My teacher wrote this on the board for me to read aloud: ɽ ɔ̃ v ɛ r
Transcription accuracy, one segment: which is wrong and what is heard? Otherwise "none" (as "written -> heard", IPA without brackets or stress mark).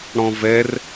none